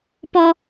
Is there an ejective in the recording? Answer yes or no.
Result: no